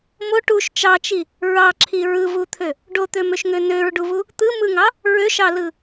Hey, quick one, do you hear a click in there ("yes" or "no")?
yes